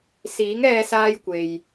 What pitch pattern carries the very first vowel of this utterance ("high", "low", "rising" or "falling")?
rising